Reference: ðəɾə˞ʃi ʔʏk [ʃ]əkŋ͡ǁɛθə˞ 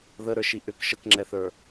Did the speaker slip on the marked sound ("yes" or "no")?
no